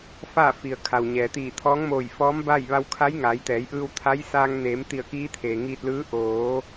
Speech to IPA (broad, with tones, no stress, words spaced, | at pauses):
faː˥˨fi˩ə̯ kʰa˩wɲɛː˩t̪iː˧˩ t̪ʰɔː˧˥ŋmoː˧˩j fɔː˧˥m ba˥˨j ʋa˧wkʰa˧˥jŋaː˩˧jt̪ɛː˩˧j ʔɯː˧wt̪ʰa˧˥jsaː˧ŋ neː˩˧m t̪i˧˩ə̯kiː˧˥ t̪ʰeː˩ŋiː˧t̚lɯː˧˥ ʔoː˩˧